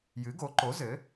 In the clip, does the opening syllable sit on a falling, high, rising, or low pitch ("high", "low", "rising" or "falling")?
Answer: rising